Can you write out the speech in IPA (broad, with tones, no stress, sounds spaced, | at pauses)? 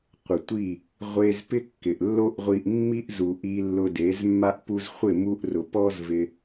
qʷ ɪ˨ tʷ i˦˨ | ʁʷ e˦ z p ɪ˦ kː ɪ˨ ʔ lː o˦ ʔ ʁʷ i˧ ʔ mː i˦ ʔ z u˨ ʔ i˧ lː ʊ˧ d e˨˦ z mː a˦ ʔ p u˧ z χʷ ɪ˦˨ m u˧ ʔ r ʊ˨ p ɔ˦ z v ɪ˧